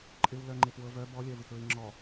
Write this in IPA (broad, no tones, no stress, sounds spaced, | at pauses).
ǃʼ ɪ w l œ ŋ͡ǃ ɪ p w ɤ v œ b ɔ lʲ œ v ɪ k ɹ i ŋ͡ǁ ɔ